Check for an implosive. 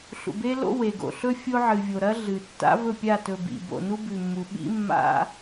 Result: present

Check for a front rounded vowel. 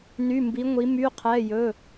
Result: present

